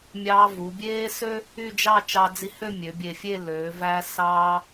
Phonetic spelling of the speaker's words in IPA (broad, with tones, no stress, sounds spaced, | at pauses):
mʲ ɑː˧ v u˩˧ bʲ eː˥ s ø˥ | y˥˧ d͡ʒ ɑ˥˧ t͡ʃ ɑ˧ d͡z i˧ h ø˥˧ mʲ ø˩˧ bʲ e˧˩ fʲ e˥˧ l øː˩˧ v æː˧ s ɑː˧